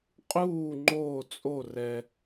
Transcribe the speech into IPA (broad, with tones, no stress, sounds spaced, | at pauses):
qʼ uː˥˨ ŋ͡ǃ oː˥˨ t͡sʼ o˥˨ r ɛ˧